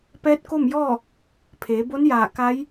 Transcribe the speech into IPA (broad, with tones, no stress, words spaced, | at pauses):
pɛː˧˥t̚ko˥˨mjɔː˥˨ | pʰeː˩˧bo˧˥njaː˧˩ ka˧˥j